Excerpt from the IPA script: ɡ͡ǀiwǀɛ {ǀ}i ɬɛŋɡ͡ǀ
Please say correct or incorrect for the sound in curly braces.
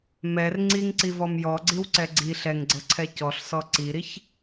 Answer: incorrect